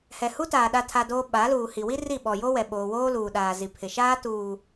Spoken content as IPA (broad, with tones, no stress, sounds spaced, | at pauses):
h ɛ˨ h u˦ t aː˨ ɗ a˦ tʰ a˦ d oː˦ ɓ a˨˦ l uː˨ h i˨ w i˦ r i˦˨ ɓ ɔ˨ j o˦ w ɛ˨ ɓ oː˨ w oː˦ l uː˨ ɗ aː˨ z i˨ pʰ ɪ˨ ʃ aː˦ t uː˨